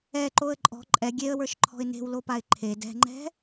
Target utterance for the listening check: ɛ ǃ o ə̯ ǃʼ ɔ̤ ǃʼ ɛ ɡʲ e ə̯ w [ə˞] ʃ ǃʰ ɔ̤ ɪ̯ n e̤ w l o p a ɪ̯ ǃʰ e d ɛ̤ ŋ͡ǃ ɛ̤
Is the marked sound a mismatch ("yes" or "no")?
no